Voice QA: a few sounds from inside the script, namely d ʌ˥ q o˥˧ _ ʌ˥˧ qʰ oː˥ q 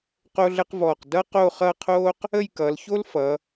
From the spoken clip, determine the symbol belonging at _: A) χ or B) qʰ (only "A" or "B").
A